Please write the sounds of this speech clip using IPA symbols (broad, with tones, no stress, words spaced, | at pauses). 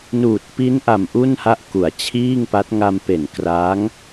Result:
nuː˨˩t̚pi˦˥nʔa˨˩m ʔu˥˩nha˥˩ʔ ku˨˩a̯t͡ɕʰiː˥˩ŋpa˦˥t̚ ŋa˧mpe˨˩n kra˦˥ŋ